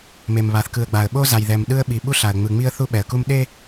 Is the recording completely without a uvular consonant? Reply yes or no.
yes